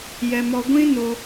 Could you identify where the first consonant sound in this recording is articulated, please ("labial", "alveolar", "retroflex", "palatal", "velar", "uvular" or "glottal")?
palatal